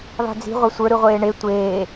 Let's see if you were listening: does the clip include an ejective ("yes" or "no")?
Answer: no